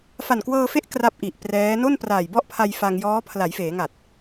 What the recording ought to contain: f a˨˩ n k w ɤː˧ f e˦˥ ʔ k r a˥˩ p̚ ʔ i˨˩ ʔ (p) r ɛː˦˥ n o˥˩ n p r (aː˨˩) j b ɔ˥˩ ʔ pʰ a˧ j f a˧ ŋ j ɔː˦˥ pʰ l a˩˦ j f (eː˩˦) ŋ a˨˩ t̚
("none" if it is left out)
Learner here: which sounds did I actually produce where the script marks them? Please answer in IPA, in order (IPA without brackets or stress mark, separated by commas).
p, aː˨˩, eː˩˦